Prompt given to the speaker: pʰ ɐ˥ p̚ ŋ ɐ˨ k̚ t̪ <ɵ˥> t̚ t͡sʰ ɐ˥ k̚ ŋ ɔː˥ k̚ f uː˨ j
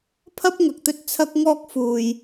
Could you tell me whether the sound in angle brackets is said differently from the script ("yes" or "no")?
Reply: no